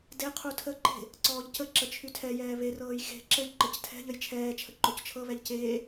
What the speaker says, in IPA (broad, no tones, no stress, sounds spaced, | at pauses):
d e qʰ u tʰ ə ǃ e̤ | ǀ ɔː ʎ c ə ǁ ə t͡ʃʰ y tʰ ɛ j ɛː β e r ɤː j x e̤ ǁ ɘ ʎ ǃ ə c tʰ ɛ̤ ʎ ə j t͡ʃʰ ɛː t͡ʃʰ ə ǃ o c t͡ʃʰ ɤ β ɛ ʎ c eː